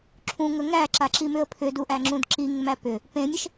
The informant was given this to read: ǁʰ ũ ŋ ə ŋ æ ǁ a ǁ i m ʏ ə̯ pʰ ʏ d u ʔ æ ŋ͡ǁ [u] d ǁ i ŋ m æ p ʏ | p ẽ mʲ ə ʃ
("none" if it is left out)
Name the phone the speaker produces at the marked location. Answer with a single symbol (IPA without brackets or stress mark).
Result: ũ